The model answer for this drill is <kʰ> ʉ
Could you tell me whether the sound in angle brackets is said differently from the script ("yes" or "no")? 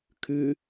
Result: no